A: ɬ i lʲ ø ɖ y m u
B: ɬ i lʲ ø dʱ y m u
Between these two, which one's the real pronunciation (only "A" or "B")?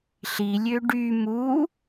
A